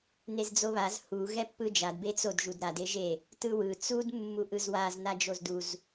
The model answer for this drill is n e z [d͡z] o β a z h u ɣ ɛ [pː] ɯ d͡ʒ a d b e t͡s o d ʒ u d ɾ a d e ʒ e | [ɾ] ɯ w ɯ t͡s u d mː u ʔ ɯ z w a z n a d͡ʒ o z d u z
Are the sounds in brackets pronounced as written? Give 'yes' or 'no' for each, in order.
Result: yes, yes, no

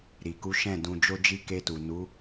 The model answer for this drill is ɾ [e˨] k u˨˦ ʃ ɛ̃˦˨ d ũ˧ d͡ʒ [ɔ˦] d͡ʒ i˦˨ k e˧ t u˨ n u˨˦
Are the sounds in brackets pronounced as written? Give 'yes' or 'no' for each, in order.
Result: no, no

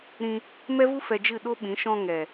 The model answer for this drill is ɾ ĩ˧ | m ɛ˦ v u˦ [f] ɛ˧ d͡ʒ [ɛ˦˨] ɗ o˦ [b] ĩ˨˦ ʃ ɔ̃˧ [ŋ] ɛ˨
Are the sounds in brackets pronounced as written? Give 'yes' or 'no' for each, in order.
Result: yes, no, no, yes

